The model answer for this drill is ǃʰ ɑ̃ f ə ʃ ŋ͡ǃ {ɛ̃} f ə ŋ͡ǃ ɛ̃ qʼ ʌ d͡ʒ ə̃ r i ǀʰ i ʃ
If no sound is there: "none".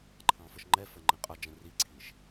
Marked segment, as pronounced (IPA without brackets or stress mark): ɛ